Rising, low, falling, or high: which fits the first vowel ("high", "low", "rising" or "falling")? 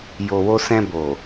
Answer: low